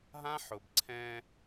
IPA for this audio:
ɦã˦ħʊ˨bǀʰɛ̃˦

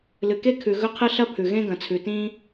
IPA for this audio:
lɨ˩ke˥kʰʉ˩ ɣɵ˥qʰɨ˥ ɬɐ˥pʰʉ˩ɣẽ˥ ɡɐ̃˩t͡sʰʉ˩tĩ˥

